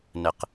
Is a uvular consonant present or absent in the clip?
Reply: present